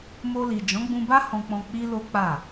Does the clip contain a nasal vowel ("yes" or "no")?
yes